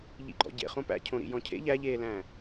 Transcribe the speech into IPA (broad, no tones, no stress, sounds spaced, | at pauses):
ʎ ḭ ɡ͡ǃ ɔ̰ ɟ ḛ χ õ p æ̰ cʰ õ ɾ ḭ j ɔ̃ cʰ ḛ ʎ æ ʎ eː l æ̃ː